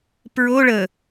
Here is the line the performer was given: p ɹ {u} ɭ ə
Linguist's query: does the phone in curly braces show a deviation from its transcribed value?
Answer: yes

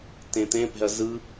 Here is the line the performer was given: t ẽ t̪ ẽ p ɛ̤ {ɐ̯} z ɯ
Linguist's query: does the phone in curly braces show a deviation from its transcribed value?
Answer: no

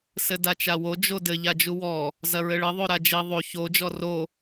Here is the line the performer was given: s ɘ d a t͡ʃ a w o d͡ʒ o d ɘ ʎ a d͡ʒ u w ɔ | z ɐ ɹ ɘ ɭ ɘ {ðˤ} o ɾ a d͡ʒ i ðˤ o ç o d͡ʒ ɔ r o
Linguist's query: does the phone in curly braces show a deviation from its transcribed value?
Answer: no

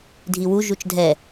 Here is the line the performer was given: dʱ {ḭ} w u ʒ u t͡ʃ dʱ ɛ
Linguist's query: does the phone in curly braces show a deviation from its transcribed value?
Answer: yes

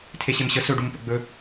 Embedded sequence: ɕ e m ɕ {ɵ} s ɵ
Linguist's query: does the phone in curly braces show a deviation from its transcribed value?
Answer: yes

